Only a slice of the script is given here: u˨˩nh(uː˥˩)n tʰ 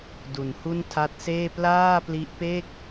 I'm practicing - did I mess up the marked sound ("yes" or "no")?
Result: yes